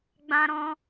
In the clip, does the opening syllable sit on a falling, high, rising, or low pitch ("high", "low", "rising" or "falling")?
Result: high